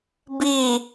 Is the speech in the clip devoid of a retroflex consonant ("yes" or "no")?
yes